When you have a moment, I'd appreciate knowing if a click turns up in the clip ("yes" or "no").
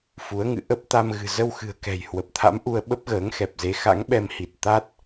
no